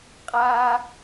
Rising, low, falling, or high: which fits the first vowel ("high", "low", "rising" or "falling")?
high